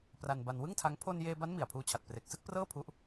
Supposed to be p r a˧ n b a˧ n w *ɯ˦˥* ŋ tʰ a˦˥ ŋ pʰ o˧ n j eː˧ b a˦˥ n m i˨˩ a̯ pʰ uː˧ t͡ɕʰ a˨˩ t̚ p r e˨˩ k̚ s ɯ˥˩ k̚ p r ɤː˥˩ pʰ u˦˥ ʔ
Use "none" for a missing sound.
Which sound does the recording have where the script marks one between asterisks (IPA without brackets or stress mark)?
ɯ˥˩